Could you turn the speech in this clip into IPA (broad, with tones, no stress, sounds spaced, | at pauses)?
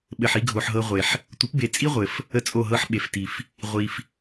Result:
ɓ ɘ˨ ħ i˧ ɡʱ o˨ ħ ɦ ɤ˧ ʁʷ e˨ ħ | tʷ ə˨˦ p b e˨ t͡sʼ i˦ ʁʷ ɘ˨ f | ə˦ t͡sʼ o˦˨ ɦ ɤ˦ ħ ɓ e˨ f t i˨ f | ʁʷ i˧ f